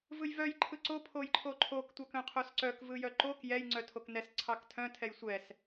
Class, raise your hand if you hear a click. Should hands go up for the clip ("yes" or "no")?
yes